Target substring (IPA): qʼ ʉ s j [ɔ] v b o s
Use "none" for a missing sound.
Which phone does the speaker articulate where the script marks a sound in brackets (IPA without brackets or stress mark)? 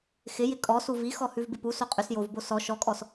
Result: o